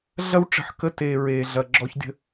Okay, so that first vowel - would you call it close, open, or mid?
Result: open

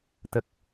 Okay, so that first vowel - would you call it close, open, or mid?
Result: mid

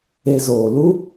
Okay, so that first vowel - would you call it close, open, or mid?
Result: mid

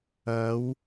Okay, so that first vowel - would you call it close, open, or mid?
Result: open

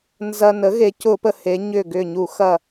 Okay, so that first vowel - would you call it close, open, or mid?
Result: open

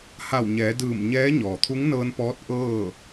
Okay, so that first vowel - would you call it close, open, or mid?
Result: open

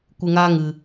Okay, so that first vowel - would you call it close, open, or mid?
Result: close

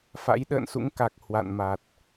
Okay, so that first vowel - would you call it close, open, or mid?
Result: open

